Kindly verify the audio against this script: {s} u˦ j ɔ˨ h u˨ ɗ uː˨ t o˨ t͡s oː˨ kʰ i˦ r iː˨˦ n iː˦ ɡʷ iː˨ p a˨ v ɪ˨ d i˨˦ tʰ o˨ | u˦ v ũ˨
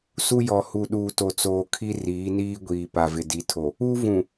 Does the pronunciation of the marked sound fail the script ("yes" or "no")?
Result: no